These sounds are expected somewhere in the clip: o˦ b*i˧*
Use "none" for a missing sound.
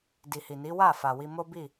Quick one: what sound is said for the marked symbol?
i˦˨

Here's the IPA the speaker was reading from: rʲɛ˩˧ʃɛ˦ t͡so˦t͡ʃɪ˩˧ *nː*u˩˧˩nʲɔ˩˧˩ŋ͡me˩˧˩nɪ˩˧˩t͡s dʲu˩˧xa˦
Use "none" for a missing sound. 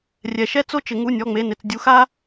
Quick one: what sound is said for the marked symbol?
ŋ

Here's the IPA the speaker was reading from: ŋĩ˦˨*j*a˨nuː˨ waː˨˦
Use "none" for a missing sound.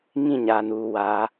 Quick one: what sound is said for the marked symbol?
ɲ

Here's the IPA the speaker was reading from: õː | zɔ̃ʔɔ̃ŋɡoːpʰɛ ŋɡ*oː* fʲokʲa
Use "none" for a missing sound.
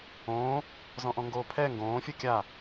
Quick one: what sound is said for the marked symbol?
õː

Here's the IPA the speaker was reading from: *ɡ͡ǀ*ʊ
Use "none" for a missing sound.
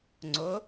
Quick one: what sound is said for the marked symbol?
ŋ͡ǀ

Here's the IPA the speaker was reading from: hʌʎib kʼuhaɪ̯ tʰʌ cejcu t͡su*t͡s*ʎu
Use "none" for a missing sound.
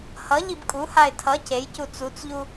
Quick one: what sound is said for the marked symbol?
t͡s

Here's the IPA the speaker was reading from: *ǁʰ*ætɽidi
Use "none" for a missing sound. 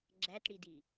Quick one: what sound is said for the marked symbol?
ɡ͡ǁ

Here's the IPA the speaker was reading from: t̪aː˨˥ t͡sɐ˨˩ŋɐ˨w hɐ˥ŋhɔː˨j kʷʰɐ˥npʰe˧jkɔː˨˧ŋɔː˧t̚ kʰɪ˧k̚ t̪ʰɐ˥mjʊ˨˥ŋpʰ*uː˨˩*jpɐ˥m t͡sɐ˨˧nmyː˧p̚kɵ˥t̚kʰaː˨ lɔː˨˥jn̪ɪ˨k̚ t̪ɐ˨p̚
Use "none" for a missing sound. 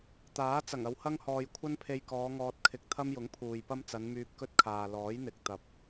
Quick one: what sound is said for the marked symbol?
uː˨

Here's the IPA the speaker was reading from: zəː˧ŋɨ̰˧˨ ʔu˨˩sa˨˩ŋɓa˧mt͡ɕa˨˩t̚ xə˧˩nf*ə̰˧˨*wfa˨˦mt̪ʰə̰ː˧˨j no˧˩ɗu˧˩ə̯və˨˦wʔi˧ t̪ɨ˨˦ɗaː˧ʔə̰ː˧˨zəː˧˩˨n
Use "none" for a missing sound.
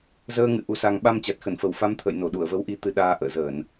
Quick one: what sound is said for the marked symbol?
ə˧˩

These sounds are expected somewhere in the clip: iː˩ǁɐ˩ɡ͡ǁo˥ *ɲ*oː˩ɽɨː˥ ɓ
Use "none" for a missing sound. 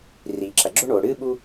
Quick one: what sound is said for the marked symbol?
ɳ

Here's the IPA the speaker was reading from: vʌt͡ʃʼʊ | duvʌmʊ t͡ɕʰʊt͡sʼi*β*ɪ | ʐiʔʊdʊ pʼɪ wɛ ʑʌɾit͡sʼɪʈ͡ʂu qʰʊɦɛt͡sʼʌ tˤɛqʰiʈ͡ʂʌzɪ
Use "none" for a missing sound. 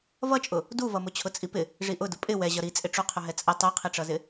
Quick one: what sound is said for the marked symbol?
p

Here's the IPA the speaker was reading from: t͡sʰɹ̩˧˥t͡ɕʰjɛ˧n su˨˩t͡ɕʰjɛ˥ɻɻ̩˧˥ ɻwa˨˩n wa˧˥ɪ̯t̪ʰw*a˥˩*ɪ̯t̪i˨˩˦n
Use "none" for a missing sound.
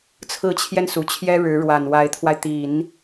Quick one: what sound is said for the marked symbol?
a˧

